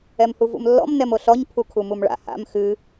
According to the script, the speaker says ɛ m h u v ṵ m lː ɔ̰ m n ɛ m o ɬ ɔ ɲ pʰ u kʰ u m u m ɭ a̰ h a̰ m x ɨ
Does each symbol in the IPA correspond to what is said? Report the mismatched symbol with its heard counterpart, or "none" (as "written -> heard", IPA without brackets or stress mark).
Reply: none